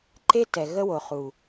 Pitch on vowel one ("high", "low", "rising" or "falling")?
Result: high